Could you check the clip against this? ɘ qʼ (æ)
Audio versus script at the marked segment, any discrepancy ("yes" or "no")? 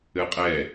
yes